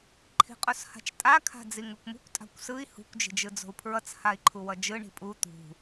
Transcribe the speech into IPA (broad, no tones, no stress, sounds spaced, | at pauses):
ǃʰ i̤ qʼ o s h a̤ t͡ʃ tʼ a kʰ a̤ d͡z i ŋ u kʷ m ṳ kʷ tʼ a̤ kʷ s ɯ i̯ h ṳ kʷ d͡ʒ i̤ d͡ʒ ɯ d͡z o̤ u̯ pʰ ɹ ʌ t͡s h a i̯ ǃʰ u w ʌ d͡ʒ ɯ ɳ i̤ pʼ u t̪ ṳ